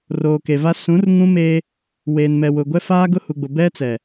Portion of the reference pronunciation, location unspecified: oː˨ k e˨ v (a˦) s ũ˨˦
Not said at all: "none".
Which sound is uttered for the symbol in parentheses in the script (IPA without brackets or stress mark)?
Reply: a˦